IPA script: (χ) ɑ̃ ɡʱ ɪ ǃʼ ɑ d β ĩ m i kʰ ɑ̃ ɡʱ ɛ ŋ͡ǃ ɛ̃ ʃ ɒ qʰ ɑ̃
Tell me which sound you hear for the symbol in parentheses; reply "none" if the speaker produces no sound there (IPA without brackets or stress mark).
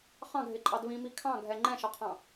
χ